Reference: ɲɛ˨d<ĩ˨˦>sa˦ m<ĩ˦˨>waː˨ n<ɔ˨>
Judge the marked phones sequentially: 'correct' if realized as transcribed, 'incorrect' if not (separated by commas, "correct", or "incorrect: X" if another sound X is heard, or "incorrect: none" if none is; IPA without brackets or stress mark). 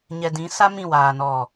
correct, correct, correct